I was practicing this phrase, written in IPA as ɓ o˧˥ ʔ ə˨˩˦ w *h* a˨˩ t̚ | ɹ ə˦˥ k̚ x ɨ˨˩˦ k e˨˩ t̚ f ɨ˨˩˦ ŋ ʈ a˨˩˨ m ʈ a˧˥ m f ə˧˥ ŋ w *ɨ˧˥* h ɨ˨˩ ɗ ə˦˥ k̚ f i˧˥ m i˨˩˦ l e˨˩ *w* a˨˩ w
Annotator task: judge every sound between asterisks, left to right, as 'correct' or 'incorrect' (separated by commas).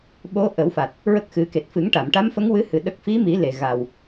incorrect, correct, incorrect